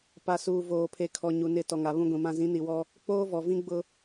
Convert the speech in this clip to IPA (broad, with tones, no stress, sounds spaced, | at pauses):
p a˨ s uː˨ v oː˨ pʰ e˨ kʰ ɔ˨ ɲ u˨ n ɪ˦˨ t ɔ˨ ŋ a˨ β ũ˦ ɡʷ ĩ˨ m ã˦ z ĩ˨˦ n i˨ w ɔ˦ | k͡p oː˦ v ɔ˨ v ĩ˦ ɡ͡b ʊ˦